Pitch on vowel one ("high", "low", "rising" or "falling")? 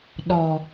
low